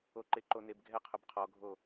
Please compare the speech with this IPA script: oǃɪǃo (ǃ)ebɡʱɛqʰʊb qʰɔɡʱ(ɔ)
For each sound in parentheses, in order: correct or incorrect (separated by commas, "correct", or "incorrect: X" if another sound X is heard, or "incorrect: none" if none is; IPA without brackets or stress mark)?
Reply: incorrect: n, incorrect: o